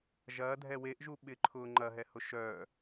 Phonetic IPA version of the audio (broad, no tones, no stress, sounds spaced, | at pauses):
ʒ ɐː dʱ ɛ w e ʔ ʒ u ɓ ɪ ǃʰ ʊː ŋ͡ǃ ɐ ɦ ɛ h ʊ ʃ œ